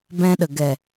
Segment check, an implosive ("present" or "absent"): present